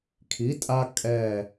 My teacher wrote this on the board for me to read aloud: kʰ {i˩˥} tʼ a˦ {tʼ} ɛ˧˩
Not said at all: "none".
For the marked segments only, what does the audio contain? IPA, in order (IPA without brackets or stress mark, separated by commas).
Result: i˩˥, kʼ